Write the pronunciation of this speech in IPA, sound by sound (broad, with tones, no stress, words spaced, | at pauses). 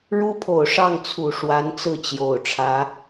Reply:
ɻu˥pʰo˨˩ʊ̯ʂɑ˥˩ŋt͡sʰu˨˩ ʂwa˧˥nt͡sɹ̩˥˩t͡ɕjo˨˩ʊ̯ʈ͡ʂʰä˧˥